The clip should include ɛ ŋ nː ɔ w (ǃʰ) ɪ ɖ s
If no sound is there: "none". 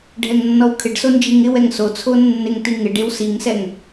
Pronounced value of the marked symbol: kʰ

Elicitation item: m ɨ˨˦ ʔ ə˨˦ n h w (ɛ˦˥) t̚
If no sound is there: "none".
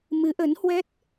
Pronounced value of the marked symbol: ɛ˦˥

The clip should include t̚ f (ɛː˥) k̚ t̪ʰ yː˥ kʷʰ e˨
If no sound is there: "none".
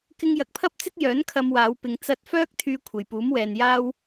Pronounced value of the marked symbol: œː˥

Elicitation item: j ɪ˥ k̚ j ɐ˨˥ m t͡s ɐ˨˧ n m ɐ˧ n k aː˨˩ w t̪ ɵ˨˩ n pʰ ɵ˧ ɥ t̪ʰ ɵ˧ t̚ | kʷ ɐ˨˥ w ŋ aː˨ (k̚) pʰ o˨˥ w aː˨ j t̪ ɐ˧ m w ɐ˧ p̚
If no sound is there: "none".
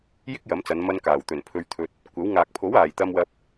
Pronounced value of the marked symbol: k̚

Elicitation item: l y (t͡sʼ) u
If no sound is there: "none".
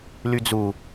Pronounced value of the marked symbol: d͡z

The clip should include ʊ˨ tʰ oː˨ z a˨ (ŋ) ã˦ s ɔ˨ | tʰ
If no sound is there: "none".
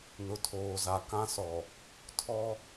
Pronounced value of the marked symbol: k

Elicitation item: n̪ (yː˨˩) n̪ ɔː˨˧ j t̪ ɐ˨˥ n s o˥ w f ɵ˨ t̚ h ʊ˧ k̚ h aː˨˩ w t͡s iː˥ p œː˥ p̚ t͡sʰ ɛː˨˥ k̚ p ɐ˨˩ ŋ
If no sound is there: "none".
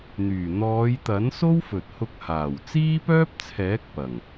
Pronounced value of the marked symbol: yː˨˩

